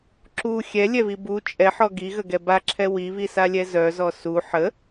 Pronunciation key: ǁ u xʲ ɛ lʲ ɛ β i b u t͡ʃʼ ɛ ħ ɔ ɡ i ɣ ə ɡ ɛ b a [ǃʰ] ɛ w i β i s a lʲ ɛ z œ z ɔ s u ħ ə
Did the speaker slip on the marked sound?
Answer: yes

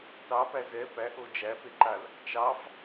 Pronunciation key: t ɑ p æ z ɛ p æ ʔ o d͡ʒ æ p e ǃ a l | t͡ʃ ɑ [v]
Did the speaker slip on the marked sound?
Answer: yes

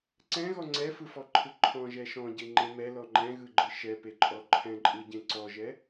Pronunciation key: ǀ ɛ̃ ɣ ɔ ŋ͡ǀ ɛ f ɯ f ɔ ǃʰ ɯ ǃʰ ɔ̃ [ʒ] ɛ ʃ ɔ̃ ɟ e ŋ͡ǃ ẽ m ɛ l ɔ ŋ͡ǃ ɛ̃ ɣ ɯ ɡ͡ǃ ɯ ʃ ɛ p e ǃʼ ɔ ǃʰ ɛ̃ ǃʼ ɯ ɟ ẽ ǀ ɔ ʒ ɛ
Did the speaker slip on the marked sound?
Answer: no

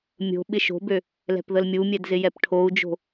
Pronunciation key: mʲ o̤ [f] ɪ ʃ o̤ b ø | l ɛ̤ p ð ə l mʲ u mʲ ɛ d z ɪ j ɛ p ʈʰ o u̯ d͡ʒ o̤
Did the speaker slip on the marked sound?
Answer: yes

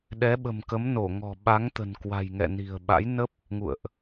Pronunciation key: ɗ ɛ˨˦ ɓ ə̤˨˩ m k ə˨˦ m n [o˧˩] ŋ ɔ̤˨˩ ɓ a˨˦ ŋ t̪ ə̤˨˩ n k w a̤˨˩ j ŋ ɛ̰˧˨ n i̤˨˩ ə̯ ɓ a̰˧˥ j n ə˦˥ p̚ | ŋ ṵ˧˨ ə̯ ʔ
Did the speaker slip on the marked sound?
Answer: no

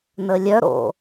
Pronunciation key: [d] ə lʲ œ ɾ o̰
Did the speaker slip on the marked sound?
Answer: yes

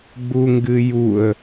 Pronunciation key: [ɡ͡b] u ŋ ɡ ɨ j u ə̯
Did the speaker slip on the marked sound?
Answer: no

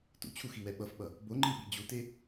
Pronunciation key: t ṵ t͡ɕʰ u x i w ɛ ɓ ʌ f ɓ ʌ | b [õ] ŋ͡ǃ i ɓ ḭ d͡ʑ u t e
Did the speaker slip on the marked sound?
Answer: yes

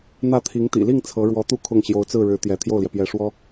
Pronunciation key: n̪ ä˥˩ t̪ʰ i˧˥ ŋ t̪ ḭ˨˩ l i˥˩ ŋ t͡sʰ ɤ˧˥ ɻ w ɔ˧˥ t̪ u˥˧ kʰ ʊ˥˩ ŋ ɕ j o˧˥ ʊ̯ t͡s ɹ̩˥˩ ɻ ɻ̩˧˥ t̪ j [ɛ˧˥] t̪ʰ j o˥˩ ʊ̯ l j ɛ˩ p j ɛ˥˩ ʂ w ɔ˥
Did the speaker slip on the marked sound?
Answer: no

